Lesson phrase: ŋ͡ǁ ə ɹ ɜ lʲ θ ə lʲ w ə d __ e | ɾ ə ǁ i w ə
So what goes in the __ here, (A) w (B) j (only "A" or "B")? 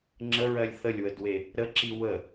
A